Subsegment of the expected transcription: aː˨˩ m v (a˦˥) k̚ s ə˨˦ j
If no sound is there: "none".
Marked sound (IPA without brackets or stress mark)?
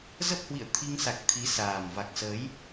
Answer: a˨˩